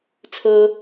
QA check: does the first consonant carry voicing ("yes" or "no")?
no